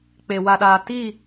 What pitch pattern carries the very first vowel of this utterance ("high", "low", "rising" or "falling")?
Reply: low